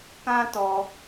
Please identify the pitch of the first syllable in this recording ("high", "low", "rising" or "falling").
high